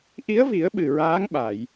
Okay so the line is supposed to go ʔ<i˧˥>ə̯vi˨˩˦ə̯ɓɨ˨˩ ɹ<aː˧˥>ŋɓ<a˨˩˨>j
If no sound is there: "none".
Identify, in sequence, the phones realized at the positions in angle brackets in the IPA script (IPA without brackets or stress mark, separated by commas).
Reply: i˧˥, aː˧˥, a˨˩˨